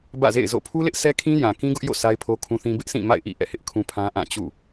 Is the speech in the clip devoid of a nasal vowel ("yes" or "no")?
no